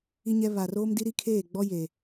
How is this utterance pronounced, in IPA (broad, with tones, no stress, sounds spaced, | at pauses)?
i˦ ɲ ɛ˦ β a˨ r oː˦ m d i˦ ɾ i˦ kʰ eː˦˨ ɡ͡b ɔ˦ j e˨